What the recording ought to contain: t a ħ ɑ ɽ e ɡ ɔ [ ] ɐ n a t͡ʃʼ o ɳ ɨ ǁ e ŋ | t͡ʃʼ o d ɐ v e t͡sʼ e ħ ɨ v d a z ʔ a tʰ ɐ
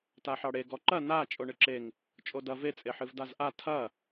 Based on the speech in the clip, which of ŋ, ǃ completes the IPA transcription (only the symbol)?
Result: ǃ